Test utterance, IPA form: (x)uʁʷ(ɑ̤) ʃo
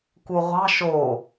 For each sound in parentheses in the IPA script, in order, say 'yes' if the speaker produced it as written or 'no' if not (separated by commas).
no, yes